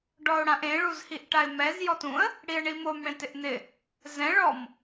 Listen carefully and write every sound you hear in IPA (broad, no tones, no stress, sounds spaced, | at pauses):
ɖ ɔ ʊ̯ ɽ ã ʔ ẽ ɭ u z h i ʔ ʈ a ɪ̯ m ɛ z j ɔ t ũ ə̯ | ɽ i ə̯ ɳ i m o m ɽ ẽ t ɪ ʔ n̪ ɪ | z ɛ̃ ɭ ɔ m